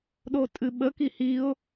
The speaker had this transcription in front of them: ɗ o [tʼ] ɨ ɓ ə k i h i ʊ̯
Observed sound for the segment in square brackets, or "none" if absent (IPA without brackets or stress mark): tʼ